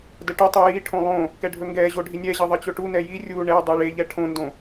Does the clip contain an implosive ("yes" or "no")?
no